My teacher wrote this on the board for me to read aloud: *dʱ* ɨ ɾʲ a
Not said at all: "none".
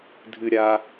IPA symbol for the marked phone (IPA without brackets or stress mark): dʱ